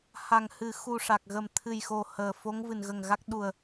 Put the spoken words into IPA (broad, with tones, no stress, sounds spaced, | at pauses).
h a˨˩ ŋ h ɨ˨˩˦ x u˧ ʂ a˨˩ k̚ ɣ ə˨˩ m t̪ʰ ɨ˨˩ j x o˨˩ h əː˨˩ f o˧˥ ŋ v ɨ˨˩ n ɣ ə˨˩ ŋ ɣ a˦˥ k̚ ɗ u˨˩ ə̯